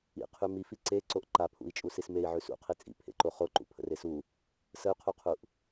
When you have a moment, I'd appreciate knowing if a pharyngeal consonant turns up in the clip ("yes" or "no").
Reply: yes